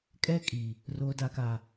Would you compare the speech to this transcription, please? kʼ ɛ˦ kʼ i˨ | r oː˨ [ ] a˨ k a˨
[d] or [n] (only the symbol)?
d